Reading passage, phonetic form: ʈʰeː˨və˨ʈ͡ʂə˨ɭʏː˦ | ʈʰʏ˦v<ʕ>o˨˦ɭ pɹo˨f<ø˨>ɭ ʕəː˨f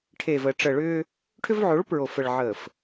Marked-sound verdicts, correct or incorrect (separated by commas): correct, incorrect